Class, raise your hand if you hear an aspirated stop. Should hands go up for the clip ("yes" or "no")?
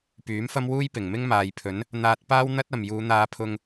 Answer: yes